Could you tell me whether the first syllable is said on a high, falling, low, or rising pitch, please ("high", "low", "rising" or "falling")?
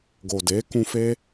low